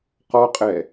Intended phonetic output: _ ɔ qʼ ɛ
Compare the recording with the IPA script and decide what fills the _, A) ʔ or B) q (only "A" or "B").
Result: B